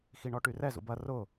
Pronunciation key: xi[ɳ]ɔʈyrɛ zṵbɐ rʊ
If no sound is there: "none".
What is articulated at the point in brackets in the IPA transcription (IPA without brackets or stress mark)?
ɳ